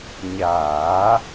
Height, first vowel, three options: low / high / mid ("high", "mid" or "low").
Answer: low